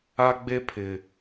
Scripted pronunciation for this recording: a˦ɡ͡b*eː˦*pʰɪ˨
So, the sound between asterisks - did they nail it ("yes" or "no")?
no